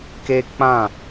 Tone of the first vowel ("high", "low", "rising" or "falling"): high